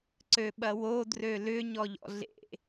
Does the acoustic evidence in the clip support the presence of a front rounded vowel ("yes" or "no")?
yes